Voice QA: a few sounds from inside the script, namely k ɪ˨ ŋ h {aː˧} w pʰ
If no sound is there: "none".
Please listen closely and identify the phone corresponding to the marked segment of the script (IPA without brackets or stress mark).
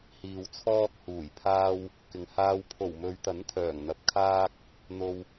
aː˧